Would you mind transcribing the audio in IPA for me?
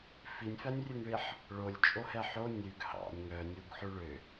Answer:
f i nʲ f æ nʲ rʲ ʉ ŋ ɭ i ħ | ɭ o lʲ t͡ʃʼ o h ɛ ħ o nʲ ʉ ɡ h ɑ̰ nʲ ŋ œ nʲ u ɡ ħ ʉ ɭ ø

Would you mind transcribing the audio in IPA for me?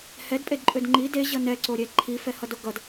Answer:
h ɛ d pʼ e d ǃʼ ø d ŋ͡ǃ i d e ʑ ʌ n ɛ ǀ o ɾʲ ɛ ǃʰ i f ɛ h ʌ d o ɡ ʌ d

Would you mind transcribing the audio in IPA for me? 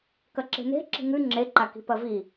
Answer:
k ɐ ǁ e̤ n e̤ ǁ i̤ ŋ ʉ ŋ͡ǁ e ǃ a k i̤ p ɐ v i

